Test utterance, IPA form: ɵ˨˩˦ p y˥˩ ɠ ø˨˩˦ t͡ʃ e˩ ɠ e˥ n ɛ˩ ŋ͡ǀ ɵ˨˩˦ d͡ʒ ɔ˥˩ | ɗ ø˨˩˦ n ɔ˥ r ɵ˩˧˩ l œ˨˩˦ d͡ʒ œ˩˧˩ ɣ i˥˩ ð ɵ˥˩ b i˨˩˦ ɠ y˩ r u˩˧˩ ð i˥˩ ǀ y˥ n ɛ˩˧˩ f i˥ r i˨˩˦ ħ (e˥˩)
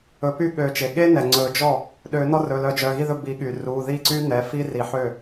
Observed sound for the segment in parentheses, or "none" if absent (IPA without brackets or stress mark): ø˥˩